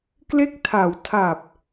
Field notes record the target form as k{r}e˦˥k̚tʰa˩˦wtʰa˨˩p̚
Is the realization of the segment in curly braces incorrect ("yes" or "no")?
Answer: yes